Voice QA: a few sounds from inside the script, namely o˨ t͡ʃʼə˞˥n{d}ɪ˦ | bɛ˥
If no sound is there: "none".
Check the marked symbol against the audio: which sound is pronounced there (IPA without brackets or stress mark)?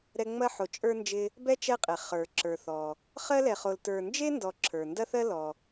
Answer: d͡ʒ